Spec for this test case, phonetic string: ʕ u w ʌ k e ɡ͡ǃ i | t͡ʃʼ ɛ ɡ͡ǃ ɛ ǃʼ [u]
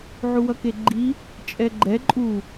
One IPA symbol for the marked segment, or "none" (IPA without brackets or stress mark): u